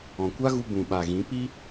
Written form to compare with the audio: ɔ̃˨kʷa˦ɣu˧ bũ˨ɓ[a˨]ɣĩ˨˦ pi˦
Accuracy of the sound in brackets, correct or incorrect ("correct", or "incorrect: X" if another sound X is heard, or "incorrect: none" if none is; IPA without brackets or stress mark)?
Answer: correct